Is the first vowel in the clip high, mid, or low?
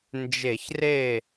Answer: mid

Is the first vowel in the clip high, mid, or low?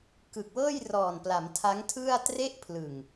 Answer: high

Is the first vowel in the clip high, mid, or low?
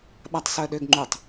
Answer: low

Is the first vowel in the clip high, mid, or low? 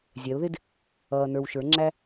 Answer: mid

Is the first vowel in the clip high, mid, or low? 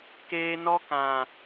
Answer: mid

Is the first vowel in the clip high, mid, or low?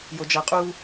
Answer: mid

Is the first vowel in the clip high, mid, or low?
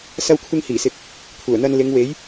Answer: low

